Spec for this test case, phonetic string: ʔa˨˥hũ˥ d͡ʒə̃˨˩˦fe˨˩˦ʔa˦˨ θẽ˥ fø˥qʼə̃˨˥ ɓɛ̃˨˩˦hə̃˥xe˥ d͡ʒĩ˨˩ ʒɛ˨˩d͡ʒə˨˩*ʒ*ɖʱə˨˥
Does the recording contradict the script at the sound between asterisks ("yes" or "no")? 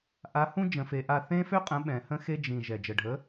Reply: yes